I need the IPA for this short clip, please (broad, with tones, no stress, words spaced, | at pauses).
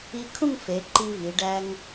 i˧ kʰũ˥˧ŋfe˩˧ ǃi˧vi˩˧ ɖæ˧ŋ